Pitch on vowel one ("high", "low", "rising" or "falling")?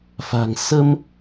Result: low